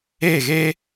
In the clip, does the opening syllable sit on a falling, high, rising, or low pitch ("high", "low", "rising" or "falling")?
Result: falling